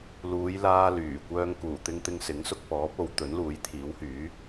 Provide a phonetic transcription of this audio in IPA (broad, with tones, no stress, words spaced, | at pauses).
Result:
luː˨˧jlaː˧ lyː˨˩kʷœː˧ŋ kuː˨˩t̪ɪ˧ŋ t̪ɪ˧ŋsɪ˨˥ŋ sʊ˧k̚pɔː˨˥p̚o˨˧w t̪ɵ˨˥nluː˨˥jt̪ʰiː˨˥whyː˨˥